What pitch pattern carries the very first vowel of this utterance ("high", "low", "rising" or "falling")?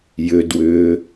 low